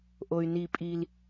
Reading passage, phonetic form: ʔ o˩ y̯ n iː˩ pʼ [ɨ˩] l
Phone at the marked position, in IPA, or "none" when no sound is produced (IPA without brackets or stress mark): i˩